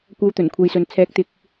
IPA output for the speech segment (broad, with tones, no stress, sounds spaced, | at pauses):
kʷ ɐ˨˧ w t̪ ɵ˨˩ n kʷʰ e˨ j s ɵ˨ n t͡sʰ ɛː˨˥ k̚ t̪ ɪ˨˥ k̚